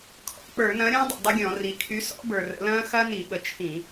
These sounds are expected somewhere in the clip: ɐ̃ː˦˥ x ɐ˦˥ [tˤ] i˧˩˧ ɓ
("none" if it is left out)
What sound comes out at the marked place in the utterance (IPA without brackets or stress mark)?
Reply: n